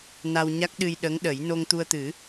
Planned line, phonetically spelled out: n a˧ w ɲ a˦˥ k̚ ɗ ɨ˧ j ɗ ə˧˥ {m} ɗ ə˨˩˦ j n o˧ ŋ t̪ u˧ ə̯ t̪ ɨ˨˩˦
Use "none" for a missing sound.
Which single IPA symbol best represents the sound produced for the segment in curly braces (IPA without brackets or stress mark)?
ŋ